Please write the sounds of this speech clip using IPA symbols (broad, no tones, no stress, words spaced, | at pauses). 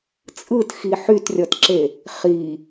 t͡sʼɯtxi ħytrʲɔtǁe | χi